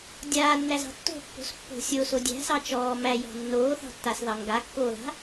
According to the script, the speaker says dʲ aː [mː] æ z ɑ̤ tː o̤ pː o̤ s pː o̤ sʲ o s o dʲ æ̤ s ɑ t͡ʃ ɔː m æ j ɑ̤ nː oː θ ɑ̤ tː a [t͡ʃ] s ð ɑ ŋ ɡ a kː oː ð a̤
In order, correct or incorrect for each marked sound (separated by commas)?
incorrect, incorrect